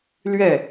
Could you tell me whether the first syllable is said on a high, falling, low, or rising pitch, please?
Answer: falling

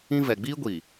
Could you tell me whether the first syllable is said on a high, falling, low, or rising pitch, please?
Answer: high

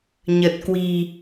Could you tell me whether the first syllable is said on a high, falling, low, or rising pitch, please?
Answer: low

